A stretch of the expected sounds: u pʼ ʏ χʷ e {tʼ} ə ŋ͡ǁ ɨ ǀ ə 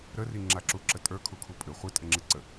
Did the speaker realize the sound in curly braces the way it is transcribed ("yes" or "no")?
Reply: yes